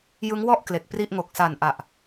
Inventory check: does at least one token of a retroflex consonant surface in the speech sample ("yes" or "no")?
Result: no